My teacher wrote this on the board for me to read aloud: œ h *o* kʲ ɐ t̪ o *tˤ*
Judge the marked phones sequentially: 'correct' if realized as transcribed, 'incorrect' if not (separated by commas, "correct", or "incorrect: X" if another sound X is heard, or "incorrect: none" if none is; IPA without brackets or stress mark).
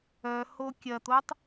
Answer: correct, correct